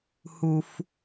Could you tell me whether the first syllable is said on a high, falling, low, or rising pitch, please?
high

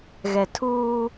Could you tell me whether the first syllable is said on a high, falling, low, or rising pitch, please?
low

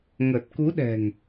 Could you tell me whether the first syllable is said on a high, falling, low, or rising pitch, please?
low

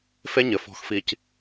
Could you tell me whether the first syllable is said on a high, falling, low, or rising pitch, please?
high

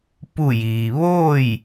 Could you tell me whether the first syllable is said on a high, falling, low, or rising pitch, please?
falling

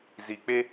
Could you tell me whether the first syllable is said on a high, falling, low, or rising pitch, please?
low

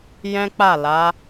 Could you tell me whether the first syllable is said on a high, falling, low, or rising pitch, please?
high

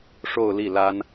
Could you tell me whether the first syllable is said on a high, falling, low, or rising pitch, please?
falling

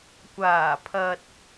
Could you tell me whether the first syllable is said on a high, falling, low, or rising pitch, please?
low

